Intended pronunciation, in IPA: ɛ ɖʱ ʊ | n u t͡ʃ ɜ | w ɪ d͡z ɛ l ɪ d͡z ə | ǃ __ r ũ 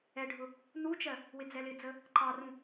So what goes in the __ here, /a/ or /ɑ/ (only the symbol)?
ɑ